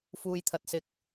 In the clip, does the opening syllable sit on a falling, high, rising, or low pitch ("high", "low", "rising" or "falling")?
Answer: low